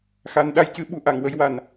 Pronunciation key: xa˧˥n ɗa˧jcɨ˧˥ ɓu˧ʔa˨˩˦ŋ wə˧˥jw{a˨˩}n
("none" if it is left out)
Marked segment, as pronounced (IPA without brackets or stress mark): a˨˩˦